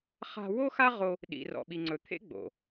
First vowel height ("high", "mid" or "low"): low